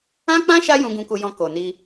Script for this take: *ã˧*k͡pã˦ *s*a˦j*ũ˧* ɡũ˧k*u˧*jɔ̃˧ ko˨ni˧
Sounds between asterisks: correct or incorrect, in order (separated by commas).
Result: incorrect, incorrect, correct, correct